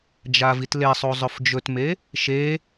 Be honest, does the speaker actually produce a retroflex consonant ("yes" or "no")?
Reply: no